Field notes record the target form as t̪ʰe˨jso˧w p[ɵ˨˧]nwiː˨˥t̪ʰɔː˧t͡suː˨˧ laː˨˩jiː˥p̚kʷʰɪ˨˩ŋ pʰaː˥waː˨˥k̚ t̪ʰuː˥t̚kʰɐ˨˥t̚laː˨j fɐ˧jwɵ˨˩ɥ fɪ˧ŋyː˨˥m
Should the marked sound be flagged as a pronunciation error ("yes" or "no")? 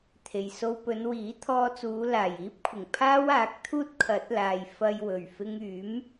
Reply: no